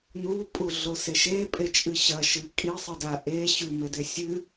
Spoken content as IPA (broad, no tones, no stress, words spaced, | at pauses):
nupʼu ɮoseʃepʼe t͡ʃʼɨɕɐ ʃɨ kʼisˤɨda ʔe ɕʉmede sʲɨ